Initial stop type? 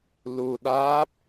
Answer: implosive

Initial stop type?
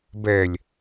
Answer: plain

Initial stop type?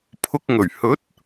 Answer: aspirated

